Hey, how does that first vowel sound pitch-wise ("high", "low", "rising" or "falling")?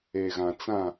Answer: low